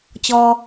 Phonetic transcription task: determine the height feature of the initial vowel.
mid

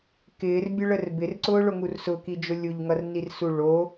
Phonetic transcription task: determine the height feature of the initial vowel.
high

